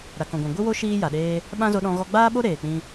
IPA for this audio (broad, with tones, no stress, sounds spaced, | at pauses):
ɾ a˨ k ɔ̃˨ ɡʷ ã˨ ɡʷ ɨ˦ w o˦ ʃ iː˦ j a˨ ɗ eː˦ | ɓ ã˦ z o˧ ɗ ɔ̃˧ ɣ ɔ˧ ɡ͡b aː˦ ɓ o˦ ɾ eː˨ k͡p ĩ˧